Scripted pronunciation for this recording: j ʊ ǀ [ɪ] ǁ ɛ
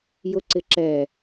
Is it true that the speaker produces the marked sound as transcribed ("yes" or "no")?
yes